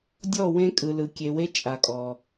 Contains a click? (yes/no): no